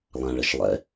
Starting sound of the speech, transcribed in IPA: lˠ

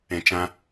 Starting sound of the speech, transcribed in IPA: ɛ̃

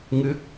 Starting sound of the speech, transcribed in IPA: ŋ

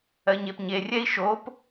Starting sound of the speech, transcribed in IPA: ɜ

